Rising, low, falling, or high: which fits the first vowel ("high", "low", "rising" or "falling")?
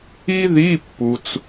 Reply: high